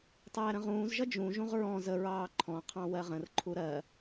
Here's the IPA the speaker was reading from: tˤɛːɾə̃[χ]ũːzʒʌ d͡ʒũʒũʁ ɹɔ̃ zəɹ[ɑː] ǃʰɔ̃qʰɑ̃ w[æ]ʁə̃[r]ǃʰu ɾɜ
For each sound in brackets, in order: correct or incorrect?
incorrect, correct, incorrect, correct

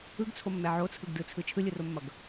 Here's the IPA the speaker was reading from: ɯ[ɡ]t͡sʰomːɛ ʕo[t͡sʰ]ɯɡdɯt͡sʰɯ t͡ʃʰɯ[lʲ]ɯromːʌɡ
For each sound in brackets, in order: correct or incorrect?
correct, correct, correct

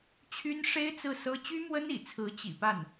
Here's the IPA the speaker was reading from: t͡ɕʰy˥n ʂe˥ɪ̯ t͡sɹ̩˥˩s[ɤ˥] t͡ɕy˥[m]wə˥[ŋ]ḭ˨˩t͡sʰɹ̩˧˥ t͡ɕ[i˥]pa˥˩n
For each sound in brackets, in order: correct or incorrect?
correct, correct, incorrect, incorrect

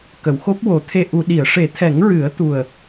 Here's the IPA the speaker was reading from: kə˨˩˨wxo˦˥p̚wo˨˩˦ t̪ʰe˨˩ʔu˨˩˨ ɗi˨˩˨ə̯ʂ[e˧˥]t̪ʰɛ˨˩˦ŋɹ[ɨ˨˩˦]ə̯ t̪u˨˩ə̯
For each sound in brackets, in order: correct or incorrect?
incorrect, correct

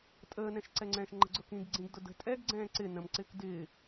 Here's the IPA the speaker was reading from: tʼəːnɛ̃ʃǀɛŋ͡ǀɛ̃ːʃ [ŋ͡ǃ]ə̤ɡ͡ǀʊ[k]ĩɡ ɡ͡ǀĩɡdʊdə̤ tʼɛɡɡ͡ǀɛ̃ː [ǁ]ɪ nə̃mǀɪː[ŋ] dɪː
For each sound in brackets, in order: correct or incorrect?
correct, correct, incorrect, incorrect

